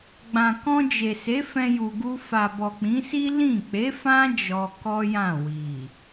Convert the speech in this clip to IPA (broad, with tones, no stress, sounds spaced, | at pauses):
ɡ͡b ã˨ k ɔ̃˧ d͡ʒ e˨ s e˨˦ f ɛ̃˧ j u˨ ɡ u˧ f a˨ b ɔ˨ k͡p ĩ˨˦ s i˦ l ĩ˦˨ k͡p e˨˦ f ã˦ d͡ʒ ɔ˧ k ɔ˦ j ã˦˨ w i˨